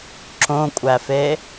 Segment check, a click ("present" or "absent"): present